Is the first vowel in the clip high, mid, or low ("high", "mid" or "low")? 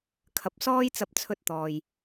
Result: low